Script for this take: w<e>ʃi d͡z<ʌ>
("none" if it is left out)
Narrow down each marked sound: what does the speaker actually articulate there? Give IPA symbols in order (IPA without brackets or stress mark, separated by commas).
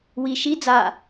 i, a